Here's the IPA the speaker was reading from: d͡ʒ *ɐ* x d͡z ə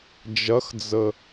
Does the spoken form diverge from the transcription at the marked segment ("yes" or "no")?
no